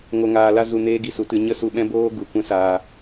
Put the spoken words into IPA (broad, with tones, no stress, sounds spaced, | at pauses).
ŋ o˧ ŋ aː˧ l a˦ z u˧ n eː˦ ɡ i˧ s u˨˦ t ɨ˧ ɲ ə˦ s u˧ ɓ ɛ̃˦ b oː˦ ɡ u˨ kʷ ɛ̃˦ s aː˧